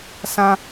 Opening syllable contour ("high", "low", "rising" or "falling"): high